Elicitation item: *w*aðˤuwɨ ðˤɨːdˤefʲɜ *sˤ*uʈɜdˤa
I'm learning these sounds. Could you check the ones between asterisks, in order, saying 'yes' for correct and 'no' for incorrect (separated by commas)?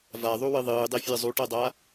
no, no